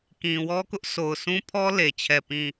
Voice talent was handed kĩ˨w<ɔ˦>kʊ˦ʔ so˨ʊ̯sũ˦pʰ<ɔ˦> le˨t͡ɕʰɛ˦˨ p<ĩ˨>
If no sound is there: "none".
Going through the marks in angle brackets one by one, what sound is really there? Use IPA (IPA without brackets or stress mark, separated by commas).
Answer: ɔ˦, ɔ˦, ĩ˦˨